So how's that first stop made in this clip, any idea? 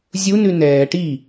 plain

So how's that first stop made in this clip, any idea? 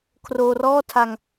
aspirated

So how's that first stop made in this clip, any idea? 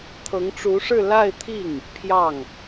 aspirated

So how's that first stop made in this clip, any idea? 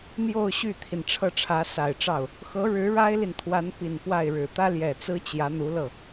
aspirated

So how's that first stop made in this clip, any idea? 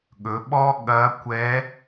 implosive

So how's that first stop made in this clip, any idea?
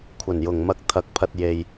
aspirated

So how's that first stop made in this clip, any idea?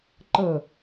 click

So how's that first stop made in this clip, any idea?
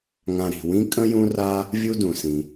ejective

